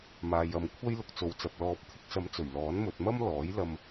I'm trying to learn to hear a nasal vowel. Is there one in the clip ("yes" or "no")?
no